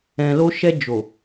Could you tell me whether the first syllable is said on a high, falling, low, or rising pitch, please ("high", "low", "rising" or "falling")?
low